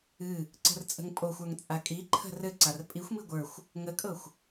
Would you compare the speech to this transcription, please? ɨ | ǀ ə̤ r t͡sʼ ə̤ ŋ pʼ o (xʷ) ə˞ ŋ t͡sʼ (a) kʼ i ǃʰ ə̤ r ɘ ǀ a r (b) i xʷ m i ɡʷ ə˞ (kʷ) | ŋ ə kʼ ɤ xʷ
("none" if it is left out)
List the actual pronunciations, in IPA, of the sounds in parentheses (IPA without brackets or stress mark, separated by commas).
xʷ, a, pʼ, xʷ